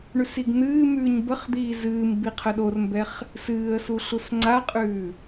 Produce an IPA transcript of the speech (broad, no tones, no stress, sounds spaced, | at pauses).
ɳ ʉ s i ɡ n̪ ɨː m ʉː ɲ b ə χ d̪ iː z ɨː m b i qʰ ə ɗ o r m b ɛ χ | s ɨː ə̯ s u ɬ u s ŋ͡ǀ a qʼ ʉː